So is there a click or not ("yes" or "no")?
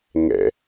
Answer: no